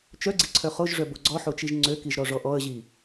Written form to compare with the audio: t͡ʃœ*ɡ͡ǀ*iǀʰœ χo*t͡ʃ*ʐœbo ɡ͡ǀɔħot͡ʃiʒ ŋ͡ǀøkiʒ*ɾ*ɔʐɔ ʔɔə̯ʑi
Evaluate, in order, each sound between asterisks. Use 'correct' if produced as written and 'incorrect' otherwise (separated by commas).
correct, incorrect, correct